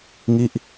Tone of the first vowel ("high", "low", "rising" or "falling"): falling